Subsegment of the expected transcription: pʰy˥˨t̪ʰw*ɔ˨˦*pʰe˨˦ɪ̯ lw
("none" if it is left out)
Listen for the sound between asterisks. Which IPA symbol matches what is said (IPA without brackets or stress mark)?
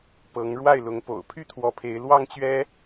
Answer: ɔ˨˦